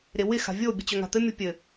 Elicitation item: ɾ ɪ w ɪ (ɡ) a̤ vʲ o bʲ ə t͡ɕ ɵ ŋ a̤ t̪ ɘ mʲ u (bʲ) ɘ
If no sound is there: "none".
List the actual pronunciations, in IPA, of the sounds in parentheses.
x, pʲ

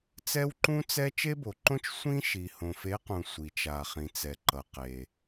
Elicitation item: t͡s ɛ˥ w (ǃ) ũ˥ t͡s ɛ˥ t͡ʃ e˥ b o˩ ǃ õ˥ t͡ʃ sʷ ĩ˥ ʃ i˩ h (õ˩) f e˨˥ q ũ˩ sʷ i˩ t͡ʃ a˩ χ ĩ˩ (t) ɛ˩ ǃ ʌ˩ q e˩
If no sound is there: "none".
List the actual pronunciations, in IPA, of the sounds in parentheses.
ǃ, õ˩, t͡s

